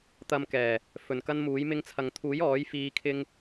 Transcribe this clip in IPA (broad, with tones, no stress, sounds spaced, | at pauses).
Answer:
t̪ ɐ˧ m k ɛː˨˩ | f ɵ˨˩ n k ɐ˥ n m uː˨˥ j m ɪ˧ ŋ t͡sʰ ɐ˨ ŋ t̪ʰ uː˨˥ j ɔː˨˥ j f iː˨˧ kʰ ɪ˧ ŋ